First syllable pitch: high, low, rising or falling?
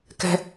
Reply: high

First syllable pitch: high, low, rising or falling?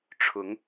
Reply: rising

